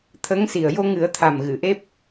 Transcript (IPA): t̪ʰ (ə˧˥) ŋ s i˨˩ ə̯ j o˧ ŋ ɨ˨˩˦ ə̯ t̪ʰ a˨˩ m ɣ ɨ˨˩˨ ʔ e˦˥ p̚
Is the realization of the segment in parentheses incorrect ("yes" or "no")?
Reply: no